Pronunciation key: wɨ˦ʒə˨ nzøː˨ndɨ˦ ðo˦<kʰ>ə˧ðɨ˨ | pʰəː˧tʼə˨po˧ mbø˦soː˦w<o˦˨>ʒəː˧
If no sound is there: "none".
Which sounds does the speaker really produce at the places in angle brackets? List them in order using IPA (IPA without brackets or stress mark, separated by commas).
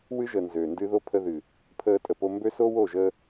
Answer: pʰ, o˦˨